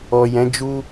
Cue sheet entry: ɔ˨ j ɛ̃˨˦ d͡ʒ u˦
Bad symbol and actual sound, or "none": none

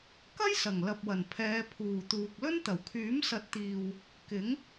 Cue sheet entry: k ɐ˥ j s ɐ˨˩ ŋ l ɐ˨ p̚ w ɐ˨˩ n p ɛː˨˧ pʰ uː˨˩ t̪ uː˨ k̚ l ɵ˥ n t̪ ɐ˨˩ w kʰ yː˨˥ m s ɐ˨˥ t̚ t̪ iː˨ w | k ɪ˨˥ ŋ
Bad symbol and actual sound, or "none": p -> pʰ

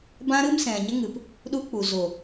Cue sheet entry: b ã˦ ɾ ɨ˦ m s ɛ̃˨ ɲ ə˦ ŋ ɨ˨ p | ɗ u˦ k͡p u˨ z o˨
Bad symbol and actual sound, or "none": none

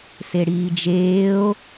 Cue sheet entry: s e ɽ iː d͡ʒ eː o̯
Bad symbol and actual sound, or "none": none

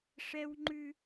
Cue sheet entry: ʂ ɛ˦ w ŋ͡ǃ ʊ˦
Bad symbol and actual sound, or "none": ʊ˦ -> ʉ˦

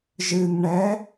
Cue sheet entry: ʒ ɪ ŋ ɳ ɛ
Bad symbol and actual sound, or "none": ɪ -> ɨ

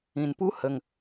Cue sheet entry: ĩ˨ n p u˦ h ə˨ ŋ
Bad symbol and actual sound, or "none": none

